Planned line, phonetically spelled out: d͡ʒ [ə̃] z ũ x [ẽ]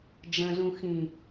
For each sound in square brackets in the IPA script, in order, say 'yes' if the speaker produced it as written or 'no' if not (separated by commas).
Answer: yes, no